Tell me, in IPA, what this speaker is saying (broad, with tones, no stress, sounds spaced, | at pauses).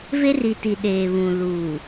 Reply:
v e˦ r i˨ t i˨ ɗ eː˨ β ũ˨ l uː˨